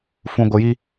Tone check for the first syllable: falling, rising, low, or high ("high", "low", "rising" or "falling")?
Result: low